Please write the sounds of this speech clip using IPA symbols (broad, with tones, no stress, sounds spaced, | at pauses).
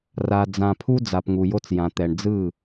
r a˨ d͡z ã˨ pʰ u˦ d͡z a˨ p ŋ u˨ j o˦ t͡s j ã˨ t̪ ɛ˨ ɳ d͡z ɯ˦˨